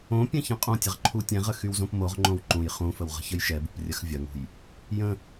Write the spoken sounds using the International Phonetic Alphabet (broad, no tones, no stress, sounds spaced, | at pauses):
õ pʲ ɛ̃ ç ɐ̃ qʼ õ tʲ ə ʁ ǃʰ u tʲ ɛ̃ ʁ ə x y w z õ p m o ʁ ŋ͡ǃ õ w ǃ ũ j χ ũ f ə w ʁ ə̤ ç ə j ʃ ɛ b ṳ p rʲ ɐ x vʲ ɐ ŋ ṳ j | j ə̃